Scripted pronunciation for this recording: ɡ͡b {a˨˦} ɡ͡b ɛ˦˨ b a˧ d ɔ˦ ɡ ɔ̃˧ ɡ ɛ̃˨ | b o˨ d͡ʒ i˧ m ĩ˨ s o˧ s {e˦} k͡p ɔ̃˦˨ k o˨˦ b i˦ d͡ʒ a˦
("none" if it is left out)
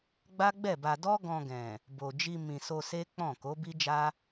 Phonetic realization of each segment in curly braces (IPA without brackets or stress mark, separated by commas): a˦, e˦